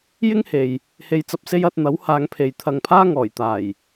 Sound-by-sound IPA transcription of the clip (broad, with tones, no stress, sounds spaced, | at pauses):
j ɪ˥ ŋ h e˨ j | h e˧ j t͡s ɐ˧ p̚ s e˥ j ɐ˧ t̚ n̪ ɐ˨˥ w h aː˨˧ ŋ pʰ e˨ j t̪ʰ ɐ˨ ŋ pʰ aː˥ ŋ ɔː˨˩ j t̪ aː˨˩ j